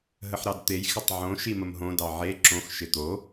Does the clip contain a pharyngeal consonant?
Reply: yes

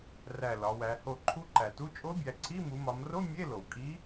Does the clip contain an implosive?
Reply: no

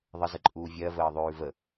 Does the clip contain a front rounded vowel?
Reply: no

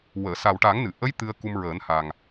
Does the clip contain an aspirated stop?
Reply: no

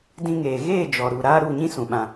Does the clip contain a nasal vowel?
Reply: yes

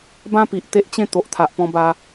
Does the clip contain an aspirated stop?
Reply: yes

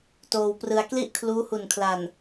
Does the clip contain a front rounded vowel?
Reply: no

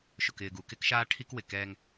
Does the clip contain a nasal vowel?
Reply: no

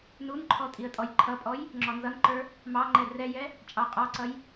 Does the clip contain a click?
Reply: yes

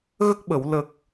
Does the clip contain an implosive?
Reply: yes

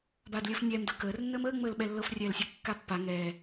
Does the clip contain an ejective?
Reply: no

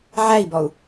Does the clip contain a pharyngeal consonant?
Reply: yes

